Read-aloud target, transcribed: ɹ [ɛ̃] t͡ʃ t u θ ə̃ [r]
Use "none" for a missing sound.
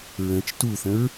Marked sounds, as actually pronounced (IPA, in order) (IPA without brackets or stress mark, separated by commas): ə̃, ɹ